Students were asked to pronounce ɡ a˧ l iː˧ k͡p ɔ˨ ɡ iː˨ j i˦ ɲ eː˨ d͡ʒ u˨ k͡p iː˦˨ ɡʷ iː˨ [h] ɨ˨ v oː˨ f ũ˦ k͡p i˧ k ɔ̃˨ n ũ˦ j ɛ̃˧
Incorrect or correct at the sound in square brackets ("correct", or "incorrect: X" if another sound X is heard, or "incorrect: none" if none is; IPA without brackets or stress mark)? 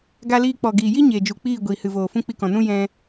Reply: correct